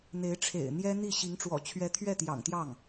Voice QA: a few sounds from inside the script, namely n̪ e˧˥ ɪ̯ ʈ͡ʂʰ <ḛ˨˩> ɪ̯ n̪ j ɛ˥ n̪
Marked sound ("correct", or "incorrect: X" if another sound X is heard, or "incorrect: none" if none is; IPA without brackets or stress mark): correct